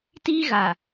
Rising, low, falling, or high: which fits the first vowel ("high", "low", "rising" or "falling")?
high